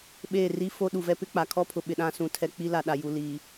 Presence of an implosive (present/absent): present